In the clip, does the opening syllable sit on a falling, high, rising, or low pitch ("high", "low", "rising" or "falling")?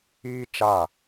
high